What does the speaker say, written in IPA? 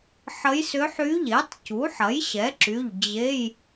ħ ə˧˥ j s ʏ˧˥ ħ y˧˥ ʎ e˩˥ tˤ c u˩˥ ħ ɐ˩˥ j ɕ ɛ˩˥ ǁ y˩˧˩ ʎ d͡ʑ e˧˥˧ j

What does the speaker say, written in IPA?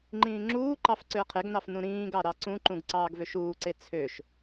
ŋ͡ǃ ĩː ŋ͡ǁ uː ǃ ɑ f ǀ ø ɐ̯ qʰ e ɡ n ɑ f n ũ ɾ ĩː ɡ ɑ ɾ ɑ ǀ ũ ǃ ũ ɡ ǀ ɑː ɡ v ø ʃ uː ǀ e t͡sʰ ø ʃ

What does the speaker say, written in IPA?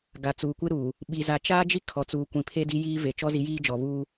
ɡ a˨ t͡s uː˨ kʷ ɪ˦ ɾ uː˨ | ɓ i˨ z a˨ t͡ʃ aː˦ d͡ʒ i˦ kʰ ɔ˨ t͡s uː˨ kʷ ĩ˨ pʰ e˦ d i˦ j iː˦ v e˨ t͡ʃ ɔ˦ z i˨˦ j iː˦ d͡ʒ ɔ˨ β uː˦

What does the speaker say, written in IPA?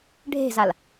ɖʱ e̤ z a l

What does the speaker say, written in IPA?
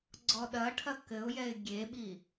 ɡ͡ǀ ɔ ɗ ɐ ʈʰ ɐ k ɘ ʊ̯ j ɛ ɪ̯ ɡʲ e ɓ i

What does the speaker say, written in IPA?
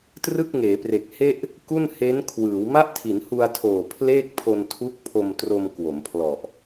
t r ɯ˥˩ k̚ ŋ eː˩˦ p r e˨˩ k̚ h e˥˩ ʔ | k u˥˩ n h e˦˥ n kʰ w ɯː˩˦ w m a˥˩ ʔ tʰ i˩˦ n h u˧ a̯ tʰ oː˨˩ pʰ l eː˥˩ k̚ pʰ o˧ n tʰ u˦˥ k̚ pʰ o˧ m t r o˧ m k w o˩˦ m pʰ l ɔ˨˩ ʔ

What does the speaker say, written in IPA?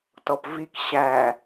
t ɔ p v i k ɕ æ

